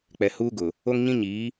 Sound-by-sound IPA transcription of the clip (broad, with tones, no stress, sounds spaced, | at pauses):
k͡p ɛ˨ h uː˦ ɡ ʊ˨ | o˦ ŋ ɲ ĩ˦ ɲ iː˨˦